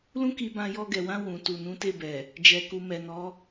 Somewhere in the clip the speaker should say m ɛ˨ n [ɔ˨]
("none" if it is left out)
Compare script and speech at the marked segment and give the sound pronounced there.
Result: ɔ˨˦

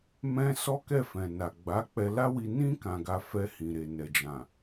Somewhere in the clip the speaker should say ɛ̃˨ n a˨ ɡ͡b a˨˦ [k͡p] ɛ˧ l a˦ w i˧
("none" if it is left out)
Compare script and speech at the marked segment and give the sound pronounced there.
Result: k͡p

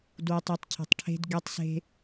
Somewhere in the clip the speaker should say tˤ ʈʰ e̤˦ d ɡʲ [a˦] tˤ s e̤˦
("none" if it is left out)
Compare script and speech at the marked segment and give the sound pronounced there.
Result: a˦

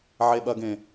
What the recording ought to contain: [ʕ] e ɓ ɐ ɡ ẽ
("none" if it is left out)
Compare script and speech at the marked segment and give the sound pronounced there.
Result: ʕ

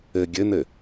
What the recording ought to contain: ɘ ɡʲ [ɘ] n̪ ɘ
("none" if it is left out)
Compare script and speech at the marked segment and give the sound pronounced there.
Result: ɘ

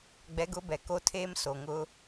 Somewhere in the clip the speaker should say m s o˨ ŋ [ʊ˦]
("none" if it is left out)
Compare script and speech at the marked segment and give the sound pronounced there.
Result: ʊ˦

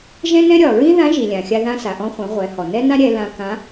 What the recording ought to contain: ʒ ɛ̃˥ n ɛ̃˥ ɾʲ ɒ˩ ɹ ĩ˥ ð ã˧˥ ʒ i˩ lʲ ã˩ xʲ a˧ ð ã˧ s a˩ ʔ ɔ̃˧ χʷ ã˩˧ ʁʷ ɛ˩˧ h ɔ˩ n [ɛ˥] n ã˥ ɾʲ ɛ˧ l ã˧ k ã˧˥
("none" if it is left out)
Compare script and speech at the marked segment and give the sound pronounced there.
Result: ɛ˥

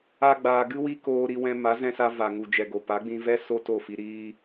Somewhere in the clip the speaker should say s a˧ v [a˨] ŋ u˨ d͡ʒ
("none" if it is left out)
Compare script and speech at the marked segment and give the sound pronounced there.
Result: a˨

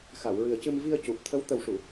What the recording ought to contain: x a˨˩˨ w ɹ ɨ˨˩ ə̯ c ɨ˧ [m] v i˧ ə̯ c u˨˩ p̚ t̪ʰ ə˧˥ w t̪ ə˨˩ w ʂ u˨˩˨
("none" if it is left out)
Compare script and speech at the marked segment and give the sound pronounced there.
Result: m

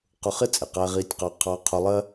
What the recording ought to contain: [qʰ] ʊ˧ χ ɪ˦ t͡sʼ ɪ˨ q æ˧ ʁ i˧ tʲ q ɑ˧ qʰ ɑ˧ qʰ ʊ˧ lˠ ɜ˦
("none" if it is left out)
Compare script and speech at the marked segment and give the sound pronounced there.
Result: q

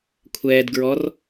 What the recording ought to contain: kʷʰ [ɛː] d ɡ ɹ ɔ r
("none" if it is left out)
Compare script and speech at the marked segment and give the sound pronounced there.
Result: ɛː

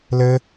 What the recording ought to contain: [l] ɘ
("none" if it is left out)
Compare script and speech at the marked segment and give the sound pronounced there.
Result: l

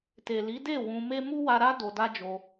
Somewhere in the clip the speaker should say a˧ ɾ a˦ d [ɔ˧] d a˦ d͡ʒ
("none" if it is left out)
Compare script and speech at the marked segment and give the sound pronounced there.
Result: o˧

